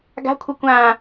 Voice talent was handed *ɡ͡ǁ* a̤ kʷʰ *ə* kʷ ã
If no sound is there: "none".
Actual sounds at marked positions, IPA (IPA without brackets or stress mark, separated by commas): ɡ, ə